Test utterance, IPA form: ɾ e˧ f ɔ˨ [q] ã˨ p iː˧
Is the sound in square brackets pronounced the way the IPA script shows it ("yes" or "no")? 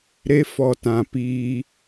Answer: no